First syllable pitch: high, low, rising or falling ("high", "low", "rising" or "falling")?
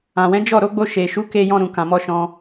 low